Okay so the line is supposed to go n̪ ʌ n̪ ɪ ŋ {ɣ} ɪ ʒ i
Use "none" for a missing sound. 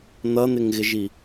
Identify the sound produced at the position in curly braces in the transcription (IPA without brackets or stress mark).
ɣ